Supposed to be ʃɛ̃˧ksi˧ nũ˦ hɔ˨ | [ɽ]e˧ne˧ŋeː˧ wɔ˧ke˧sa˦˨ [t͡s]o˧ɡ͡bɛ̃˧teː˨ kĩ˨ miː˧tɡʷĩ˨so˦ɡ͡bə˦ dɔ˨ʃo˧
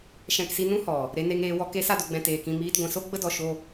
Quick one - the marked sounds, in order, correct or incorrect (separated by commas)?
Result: incorrect, incorrect